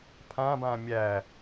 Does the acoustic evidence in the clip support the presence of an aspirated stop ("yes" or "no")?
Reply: yes